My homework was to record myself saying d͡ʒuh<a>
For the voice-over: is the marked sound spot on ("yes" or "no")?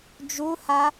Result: yes